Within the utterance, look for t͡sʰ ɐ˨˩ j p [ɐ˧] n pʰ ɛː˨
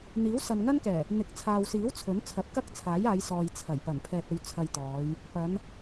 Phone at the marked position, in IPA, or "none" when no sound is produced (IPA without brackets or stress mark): ɐ˨˩